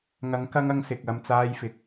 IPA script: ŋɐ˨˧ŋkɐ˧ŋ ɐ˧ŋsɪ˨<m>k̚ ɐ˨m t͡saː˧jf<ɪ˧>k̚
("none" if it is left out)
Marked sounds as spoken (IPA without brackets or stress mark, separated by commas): none, ɪ˨